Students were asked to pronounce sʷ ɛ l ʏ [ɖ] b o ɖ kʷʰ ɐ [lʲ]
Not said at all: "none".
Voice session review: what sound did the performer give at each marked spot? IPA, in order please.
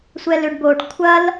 ɖ, l

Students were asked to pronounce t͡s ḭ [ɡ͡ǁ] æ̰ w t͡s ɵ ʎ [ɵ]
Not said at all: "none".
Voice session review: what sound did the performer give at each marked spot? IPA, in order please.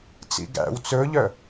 ɡ, œ

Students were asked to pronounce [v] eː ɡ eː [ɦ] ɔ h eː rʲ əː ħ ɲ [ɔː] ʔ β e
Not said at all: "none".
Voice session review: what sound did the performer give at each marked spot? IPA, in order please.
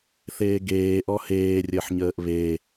θ, ʔ, əː

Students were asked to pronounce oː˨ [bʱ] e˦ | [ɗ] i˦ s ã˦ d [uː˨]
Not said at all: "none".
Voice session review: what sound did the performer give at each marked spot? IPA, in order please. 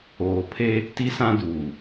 pʰ, t, uː˨

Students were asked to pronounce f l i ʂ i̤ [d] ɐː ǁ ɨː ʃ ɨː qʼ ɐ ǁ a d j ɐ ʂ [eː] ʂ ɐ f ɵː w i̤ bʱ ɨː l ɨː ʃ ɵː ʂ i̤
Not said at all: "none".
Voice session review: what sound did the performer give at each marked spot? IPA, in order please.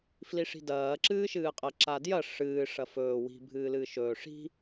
d, ɨː

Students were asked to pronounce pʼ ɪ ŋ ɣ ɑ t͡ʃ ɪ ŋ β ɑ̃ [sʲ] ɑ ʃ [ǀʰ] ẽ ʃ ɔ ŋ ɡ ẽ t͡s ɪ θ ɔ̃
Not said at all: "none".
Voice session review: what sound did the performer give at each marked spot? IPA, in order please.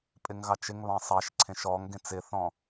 sˤ, ǀʰ

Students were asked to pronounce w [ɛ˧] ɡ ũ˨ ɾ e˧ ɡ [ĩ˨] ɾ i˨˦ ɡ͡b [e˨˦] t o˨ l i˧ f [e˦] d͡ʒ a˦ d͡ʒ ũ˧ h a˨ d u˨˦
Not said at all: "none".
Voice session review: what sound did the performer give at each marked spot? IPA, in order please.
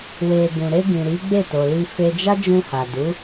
e˧, ĩ˨, e˦˨, e˦

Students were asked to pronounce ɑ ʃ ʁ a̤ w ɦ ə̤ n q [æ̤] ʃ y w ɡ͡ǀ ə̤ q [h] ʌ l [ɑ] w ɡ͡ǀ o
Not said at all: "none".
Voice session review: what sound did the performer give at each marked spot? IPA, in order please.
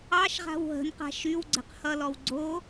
a̤, h, ɔ

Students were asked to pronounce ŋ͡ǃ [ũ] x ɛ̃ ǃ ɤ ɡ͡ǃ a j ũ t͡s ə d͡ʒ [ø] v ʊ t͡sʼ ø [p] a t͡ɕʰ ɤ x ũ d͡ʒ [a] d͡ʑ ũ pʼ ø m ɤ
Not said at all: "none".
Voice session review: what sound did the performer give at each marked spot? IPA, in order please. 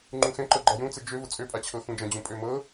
ũ, ø, pʼ, ã

